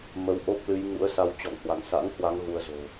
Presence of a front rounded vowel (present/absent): absent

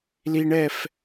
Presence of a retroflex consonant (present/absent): present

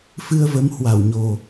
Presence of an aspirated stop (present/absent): absent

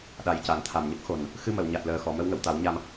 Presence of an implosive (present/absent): present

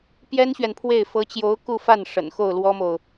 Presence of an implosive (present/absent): absent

